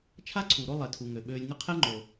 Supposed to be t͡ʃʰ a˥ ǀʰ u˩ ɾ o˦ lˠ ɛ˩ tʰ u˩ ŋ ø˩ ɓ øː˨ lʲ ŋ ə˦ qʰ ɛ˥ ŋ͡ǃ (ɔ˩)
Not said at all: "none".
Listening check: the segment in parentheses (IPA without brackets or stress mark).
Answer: o˩